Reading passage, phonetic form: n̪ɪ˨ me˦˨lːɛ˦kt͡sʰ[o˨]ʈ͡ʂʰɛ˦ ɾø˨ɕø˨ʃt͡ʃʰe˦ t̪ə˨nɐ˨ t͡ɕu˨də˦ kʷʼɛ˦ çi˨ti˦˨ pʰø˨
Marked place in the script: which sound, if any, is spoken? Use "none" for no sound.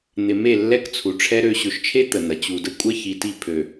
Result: u˨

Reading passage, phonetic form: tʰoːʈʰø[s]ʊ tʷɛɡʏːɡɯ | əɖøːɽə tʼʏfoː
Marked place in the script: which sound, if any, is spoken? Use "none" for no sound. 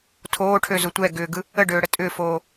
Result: z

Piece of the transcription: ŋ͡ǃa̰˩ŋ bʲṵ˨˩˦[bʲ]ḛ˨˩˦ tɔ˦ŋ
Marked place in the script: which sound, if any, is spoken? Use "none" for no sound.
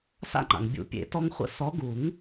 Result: pʲ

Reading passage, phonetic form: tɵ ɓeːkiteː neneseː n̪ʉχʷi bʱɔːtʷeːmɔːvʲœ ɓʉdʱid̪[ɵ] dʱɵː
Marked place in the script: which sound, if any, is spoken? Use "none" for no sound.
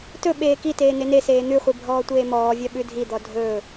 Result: ɔ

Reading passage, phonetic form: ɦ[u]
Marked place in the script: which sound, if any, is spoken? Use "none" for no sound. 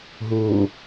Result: u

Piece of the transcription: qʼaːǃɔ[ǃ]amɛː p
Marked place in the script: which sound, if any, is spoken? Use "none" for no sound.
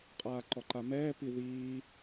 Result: ǃ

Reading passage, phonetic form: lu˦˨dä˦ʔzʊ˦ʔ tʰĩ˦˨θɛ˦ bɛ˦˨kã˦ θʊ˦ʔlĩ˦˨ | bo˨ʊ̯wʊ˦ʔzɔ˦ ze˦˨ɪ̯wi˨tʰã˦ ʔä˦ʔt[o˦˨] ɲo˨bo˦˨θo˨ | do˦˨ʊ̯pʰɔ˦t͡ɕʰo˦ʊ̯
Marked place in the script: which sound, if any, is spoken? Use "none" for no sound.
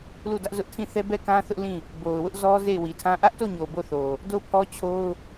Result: o˦˨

